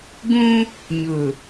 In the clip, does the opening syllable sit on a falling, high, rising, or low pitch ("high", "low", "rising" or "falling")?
high